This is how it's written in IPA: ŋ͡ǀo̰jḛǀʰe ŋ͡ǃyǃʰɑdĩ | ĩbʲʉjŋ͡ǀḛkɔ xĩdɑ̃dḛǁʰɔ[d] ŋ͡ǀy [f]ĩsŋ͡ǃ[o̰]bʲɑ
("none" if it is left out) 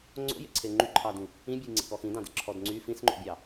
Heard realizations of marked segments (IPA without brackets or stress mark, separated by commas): d, f, o̰